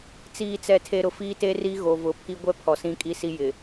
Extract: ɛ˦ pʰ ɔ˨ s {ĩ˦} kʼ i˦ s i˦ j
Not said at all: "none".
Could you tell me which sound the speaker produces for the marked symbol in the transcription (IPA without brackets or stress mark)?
ĩ˦